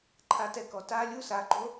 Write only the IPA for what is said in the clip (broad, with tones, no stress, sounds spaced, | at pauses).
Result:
ǃʰ a˦ t ɛ˦ k ɔ˧ t a˦ lʲ u˦ s a˨˦ ɡ͡ǃ o˦